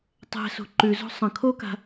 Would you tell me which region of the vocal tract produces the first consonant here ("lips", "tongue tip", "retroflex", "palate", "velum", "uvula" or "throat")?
tongue tip